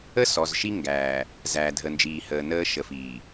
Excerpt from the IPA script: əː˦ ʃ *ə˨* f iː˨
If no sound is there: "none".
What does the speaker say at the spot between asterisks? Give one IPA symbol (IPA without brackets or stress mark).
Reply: ə˨